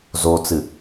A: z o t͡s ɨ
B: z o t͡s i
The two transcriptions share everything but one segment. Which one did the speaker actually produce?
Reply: A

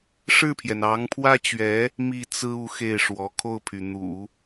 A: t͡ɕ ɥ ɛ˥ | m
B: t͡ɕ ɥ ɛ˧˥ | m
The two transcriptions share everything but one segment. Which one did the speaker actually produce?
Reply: B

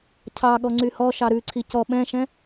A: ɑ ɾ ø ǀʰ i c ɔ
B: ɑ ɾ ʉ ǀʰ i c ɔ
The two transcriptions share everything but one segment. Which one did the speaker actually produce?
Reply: B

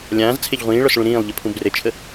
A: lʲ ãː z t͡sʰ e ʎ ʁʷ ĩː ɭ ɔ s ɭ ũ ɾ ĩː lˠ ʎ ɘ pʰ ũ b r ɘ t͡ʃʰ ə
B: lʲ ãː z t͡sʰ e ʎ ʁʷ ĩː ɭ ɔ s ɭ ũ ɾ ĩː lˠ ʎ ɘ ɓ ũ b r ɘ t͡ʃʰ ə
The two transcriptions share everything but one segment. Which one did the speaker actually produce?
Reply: A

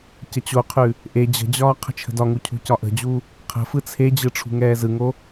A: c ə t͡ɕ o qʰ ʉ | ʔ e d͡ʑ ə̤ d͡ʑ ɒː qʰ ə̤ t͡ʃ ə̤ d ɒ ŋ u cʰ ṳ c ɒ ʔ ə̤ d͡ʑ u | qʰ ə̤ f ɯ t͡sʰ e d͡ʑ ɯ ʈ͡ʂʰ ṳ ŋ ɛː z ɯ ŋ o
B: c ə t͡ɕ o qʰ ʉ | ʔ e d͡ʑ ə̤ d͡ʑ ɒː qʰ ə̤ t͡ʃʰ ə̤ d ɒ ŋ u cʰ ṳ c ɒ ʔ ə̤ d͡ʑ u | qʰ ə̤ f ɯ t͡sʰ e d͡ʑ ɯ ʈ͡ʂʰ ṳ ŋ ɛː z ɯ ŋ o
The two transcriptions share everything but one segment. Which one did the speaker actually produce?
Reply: B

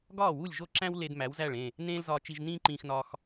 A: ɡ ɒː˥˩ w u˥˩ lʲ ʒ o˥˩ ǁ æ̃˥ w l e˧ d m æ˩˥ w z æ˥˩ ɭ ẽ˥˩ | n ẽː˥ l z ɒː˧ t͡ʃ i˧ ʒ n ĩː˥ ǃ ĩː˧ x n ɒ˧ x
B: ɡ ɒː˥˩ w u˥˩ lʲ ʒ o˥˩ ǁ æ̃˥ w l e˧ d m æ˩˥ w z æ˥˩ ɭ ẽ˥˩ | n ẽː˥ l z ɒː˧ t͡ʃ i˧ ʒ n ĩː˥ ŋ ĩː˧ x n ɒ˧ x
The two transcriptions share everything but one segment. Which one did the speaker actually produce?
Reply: A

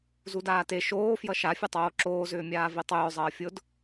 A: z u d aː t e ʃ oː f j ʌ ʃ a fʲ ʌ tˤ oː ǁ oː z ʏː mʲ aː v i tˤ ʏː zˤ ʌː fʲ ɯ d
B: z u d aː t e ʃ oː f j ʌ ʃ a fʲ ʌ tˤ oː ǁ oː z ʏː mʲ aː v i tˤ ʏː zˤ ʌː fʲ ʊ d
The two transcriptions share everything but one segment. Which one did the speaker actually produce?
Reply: B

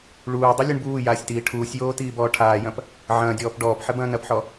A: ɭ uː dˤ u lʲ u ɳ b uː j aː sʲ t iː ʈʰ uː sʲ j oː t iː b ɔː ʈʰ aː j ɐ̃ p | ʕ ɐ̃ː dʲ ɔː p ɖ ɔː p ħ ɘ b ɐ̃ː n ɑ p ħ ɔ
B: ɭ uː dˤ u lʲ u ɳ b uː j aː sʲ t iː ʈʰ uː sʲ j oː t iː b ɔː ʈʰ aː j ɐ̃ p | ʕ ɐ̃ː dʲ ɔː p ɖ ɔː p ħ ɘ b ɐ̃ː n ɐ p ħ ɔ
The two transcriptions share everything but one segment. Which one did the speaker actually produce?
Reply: B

